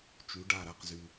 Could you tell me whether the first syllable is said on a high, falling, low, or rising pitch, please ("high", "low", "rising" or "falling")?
rising